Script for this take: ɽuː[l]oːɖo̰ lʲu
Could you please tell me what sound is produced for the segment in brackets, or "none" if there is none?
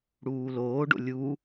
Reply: l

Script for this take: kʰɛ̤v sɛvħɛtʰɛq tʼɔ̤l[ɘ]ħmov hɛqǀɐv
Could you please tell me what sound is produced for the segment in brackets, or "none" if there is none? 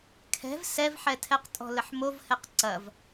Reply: ɘ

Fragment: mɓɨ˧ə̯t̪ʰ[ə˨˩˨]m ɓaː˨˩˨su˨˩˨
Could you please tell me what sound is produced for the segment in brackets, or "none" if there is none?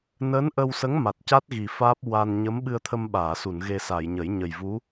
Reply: ə˧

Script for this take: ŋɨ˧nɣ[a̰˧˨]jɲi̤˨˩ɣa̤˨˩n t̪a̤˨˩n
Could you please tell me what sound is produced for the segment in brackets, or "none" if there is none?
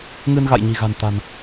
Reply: a̰˧˨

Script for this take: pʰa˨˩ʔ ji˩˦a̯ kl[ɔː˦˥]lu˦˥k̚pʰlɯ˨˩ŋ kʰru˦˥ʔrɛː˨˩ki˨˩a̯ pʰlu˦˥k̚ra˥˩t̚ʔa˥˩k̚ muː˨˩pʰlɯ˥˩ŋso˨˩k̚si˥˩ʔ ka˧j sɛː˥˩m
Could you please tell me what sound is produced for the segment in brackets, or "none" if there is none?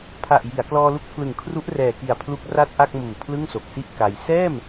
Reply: ɔː˧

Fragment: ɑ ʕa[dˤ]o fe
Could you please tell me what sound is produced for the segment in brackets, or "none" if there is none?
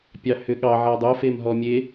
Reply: dˤ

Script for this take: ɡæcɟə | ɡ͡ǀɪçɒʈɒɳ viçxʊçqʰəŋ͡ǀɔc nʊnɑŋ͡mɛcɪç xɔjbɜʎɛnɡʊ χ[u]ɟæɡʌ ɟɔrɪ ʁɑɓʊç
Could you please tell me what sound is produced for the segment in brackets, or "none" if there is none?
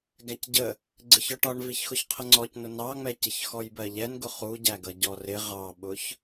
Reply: u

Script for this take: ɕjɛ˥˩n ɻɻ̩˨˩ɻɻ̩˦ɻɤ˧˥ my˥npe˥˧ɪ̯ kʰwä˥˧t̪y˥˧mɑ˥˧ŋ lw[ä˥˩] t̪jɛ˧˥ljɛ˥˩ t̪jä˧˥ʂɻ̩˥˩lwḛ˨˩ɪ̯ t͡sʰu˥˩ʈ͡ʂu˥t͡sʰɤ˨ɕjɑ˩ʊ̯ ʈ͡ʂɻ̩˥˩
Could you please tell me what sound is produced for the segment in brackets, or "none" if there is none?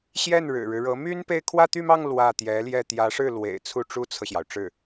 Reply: ä˥˩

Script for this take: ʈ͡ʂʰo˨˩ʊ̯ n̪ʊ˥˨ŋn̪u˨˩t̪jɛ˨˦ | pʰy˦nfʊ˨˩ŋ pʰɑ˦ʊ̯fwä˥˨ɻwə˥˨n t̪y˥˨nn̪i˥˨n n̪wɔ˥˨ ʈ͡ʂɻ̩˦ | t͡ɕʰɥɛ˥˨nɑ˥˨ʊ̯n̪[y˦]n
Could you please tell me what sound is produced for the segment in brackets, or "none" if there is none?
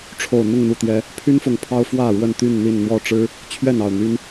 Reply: y˦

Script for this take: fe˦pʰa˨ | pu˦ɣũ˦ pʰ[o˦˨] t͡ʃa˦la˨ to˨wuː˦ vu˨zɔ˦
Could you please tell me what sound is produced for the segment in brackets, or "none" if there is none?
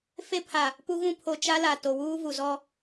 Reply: o˨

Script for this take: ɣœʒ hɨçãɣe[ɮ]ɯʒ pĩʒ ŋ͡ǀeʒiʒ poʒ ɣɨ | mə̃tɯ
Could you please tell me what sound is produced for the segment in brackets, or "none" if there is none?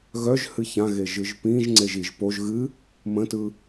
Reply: ʒ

